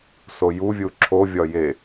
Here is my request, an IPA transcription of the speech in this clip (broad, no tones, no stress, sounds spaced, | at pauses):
s o j u vʲ u ǁʰ o vʲ ɒ j e